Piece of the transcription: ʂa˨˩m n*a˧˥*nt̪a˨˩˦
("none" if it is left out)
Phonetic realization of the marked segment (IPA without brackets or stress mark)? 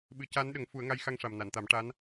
a˨˩˨